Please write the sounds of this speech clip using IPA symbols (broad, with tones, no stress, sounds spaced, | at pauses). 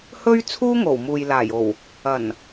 h ɵ˥ ɥ t͡sʰ uː˥ ŋ o˨˩ w m uː˨ j l aː˨˩ j o˨˩ w | ɐ˨˩ n